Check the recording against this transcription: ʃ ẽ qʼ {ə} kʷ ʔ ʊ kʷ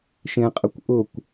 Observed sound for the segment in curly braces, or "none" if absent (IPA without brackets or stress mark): ə